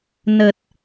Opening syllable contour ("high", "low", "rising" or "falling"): low